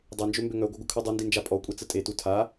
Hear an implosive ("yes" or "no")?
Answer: no